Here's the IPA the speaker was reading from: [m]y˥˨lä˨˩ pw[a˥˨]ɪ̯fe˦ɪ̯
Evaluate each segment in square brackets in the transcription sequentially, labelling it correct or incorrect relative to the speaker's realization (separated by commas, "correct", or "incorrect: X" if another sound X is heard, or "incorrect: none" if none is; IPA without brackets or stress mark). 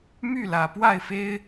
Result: correct, correct